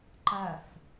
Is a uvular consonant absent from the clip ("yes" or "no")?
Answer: yes